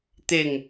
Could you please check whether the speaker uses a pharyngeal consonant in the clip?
no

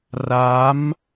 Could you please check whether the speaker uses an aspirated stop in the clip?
no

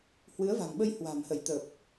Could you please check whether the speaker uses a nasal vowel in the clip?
no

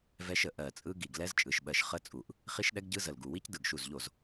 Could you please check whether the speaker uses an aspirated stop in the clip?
no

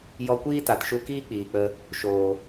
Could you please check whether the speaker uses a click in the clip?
no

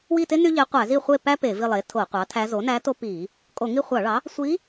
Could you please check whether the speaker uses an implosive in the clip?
no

